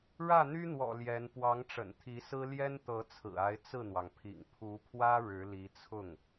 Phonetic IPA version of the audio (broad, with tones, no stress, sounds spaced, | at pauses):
ɻ ä˥˩ n̪ y˥ n̪ w ɔ̰˨˩ l j ɛ˧˥ n p w ɑ˧˥ ŋ ʈ͡ʂ ə̰˨˩ n t̪ʰ i˧˥ s ɹ̩˥ l j ɛ˥ n t̪ ɤ˧˥ t͡sʰ ɹ̩˨˩ a˧˥ ɪ̯ t͡s ɹ̩˥˩ n̪ w ɑ˩ ŋ pʰ ḭ˨˩ ŋ pʰ u˧˥ pʰ w ä˥ ɻ ɻ̩˧˥ l i˧˥ t͡sʰ ʊ˥˩ ŋ